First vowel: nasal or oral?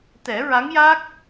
oral